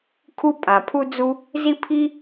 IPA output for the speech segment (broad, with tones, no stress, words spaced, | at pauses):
kʰu˥pʼã˩ pʰu˥d͡zu˥ | zi˥pʰi˥